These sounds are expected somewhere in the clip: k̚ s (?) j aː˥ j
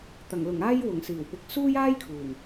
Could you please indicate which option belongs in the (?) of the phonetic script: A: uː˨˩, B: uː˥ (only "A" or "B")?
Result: B